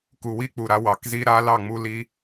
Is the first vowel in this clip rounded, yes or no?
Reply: yes